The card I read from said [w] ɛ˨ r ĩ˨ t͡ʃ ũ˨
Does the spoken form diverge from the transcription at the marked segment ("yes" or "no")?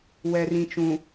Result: no